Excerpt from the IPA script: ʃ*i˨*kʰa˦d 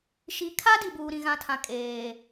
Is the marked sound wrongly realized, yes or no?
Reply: no